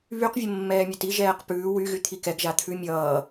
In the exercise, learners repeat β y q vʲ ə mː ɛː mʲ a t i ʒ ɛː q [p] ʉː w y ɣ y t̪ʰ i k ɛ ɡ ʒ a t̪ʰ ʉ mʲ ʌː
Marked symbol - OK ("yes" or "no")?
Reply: yes